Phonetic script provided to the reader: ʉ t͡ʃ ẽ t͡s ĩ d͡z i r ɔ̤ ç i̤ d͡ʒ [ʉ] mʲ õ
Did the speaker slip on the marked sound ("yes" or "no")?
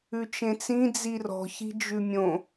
no